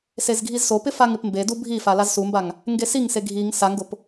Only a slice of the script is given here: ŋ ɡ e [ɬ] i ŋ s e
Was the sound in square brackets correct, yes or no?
no